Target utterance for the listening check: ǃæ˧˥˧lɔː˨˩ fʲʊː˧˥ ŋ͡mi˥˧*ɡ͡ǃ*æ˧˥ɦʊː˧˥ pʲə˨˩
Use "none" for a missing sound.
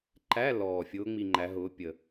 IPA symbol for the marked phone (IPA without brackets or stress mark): ŋ͡ǃ